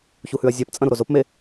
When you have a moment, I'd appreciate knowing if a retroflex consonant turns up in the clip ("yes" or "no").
no